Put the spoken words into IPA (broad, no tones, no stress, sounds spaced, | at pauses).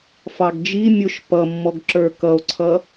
f ɑ ɡ d͡ʒ i mʲ ʊ ʃ p ʌ mː ɔ ɡ ǁ ə˞ k ʌ o̯ ǀʰ ʌ